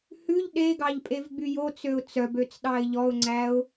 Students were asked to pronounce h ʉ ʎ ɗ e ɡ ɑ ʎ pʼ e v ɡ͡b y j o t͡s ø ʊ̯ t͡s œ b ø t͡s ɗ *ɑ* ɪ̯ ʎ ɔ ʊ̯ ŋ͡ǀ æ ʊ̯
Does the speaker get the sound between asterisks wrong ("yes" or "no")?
no